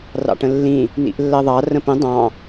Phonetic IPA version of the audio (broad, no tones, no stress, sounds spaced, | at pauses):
r ɑ̰ ʈ ə̃ lː ĩ | n ḭ ʔ lː ɜ ðˤ ɑ r ə̃ p ə̃ dˤ ɑ̃